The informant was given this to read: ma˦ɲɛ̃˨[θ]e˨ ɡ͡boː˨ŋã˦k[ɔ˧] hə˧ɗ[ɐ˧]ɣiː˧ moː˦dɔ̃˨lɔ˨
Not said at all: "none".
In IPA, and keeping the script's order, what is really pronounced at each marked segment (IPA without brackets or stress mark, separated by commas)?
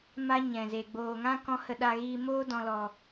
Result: z, ɔ̃˧, a˧